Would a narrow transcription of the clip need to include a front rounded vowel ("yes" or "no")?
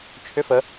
yes